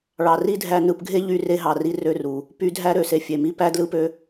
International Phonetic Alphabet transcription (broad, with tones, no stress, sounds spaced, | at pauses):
ɭ ɑ˨ r i˦ dʱ æ˧ n ɯ˧ p ɡʱ e˦ ʎ y˧ r e˧ ɦ ɑ˨ r i˧ r ø˦˨ r u˨ | p y˨˦ dʱ æ˧ ɾ ø˨ s e˨ fʲ e˨ m i˦ p æ˦ d l ɯ˦ p ø˦